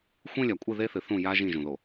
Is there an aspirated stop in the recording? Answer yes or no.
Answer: no